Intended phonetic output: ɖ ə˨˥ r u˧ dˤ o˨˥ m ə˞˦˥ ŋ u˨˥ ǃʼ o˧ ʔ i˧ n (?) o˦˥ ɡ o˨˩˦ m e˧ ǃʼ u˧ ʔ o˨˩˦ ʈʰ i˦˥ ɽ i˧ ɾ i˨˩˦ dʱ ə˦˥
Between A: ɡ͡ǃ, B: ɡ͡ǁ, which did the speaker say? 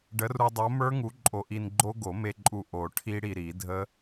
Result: A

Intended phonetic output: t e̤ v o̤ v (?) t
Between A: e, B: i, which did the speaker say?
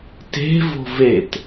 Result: A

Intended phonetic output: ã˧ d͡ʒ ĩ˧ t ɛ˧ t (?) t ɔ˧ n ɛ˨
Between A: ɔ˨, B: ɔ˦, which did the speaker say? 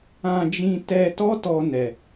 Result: B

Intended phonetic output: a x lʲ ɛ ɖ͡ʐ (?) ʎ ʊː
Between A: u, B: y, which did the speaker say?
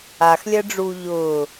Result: A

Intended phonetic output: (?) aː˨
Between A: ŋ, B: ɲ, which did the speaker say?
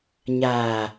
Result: B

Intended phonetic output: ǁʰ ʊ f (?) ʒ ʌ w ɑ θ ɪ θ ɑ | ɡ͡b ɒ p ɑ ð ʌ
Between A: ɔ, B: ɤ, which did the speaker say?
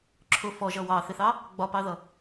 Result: A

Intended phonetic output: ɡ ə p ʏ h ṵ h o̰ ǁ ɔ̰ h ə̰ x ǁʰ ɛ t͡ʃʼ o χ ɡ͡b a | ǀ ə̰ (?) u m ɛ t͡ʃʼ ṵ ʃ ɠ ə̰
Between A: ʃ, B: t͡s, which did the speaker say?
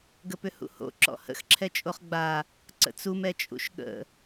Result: B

